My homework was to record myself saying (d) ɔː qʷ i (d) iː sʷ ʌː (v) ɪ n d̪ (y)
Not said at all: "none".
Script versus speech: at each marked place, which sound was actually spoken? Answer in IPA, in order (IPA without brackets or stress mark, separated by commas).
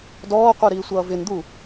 d, ɾ, v, u